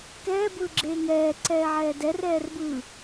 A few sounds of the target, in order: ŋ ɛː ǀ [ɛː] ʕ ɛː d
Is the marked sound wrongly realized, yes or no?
no